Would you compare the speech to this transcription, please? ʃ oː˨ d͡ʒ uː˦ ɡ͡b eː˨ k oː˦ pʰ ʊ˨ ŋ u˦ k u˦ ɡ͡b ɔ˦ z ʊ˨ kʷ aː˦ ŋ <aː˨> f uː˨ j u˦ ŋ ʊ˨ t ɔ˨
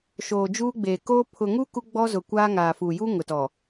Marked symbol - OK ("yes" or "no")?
yes